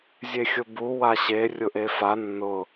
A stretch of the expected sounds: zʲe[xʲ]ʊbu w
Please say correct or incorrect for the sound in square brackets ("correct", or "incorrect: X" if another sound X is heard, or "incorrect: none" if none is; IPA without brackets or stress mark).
correct